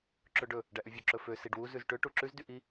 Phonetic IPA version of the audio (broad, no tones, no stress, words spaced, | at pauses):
ǁɵɖɵ | ɖæʔyvʲɵ ǁɵfø siɖwu zʉzʈø ʈuǁʉz dyʔi